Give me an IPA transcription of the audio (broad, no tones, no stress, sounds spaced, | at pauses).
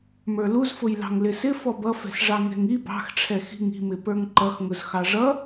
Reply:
m ə˞ l u z f ʊ j l ɑ̤ ŋ l ɪ s ɪ f ɔ b ʌ f ɛ̤ s ʐ ɑ ŋ ɛ̤ ŋ i b ɑ̤ x ʈ͡ʂʰ ɛ x i̤ ŋ i̤ m ɪ p ə˞ ŋ ǃ ʌ x ŋ ʊ z x ɑ ʐ ʌ